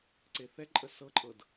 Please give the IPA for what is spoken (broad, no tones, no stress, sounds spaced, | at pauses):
ǀ e θ ɛ ǃʼ ə s ɤ ǃʼ ɤ d